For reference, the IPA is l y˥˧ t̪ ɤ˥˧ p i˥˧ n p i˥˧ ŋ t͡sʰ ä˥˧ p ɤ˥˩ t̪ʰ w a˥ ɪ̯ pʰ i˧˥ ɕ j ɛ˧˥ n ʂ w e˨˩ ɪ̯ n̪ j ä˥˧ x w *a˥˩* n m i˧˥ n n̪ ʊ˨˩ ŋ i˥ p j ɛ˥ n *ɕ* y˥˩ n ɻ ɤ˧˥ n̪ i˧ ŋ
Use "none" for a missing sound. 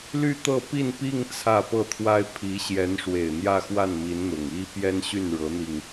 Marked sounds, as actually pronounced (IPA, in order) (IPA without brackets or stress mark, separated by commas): a˥˩, ɕ